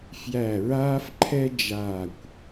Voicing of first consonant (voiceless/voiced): voiceless